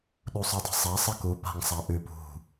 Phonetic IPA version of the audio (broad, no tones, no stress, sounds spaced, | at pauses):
ɗ u sˤ ʉ dˤ e̤ sˤ a sˤ ɨ k u p a̤ ŋ sˤ a ʔ ʉ p ṳ